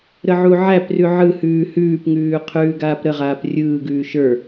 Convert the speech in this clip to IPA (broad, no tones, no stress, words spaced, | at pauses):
ɾəʕuʕæprʉ ʕɯhʉː hʉːpŋʉː qʰʉːɡaːpɾəʁaːp rʲɯːɡʉː ʃə˞